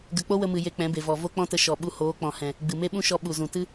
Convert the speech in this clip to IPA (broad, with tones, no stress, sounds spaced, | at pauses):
ɡ ə˧ k͡p o˦ w ə˧ m ɨ˨ j e˧ k͡p ɛ̃˨˦ b e˨ v ɔ˨ v o˦ k͡p ɔ̃˦ t ə˧ ʃ ɔ˨ ɓ u˧ h oː˨˦ k͡p ɔ̃˨ h ɛ̃˨ | ɡ͡b ɨ˨ m e˦ ɓ ũ˦ ʃ ɔ˧ ɓ u˨ z ũ˨ t ɨ˦